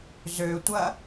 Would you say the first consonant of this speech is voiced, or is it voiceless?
voiced